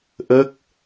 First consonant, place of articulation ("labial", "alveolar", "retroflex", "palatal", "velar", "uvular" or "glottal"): glottal